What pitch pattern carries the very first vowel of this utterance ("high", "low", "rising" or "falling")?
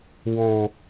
low